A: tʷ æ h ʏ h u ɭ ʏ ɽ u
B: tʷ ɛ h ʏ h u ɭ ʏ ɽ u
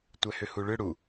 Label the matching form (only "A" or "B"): B